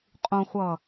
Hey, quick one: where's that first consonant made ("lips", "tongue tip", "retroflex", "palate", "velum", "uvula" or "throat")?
uvula